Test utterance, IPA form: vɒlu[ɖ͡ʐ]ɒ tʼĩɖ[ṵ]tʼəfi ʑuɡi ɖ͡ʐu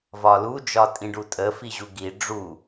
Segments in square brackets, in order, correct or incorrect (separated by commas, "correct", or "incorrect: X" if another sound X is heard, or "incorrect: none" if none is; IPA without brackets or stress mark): incorrect: d͡ʒ, incorrect: u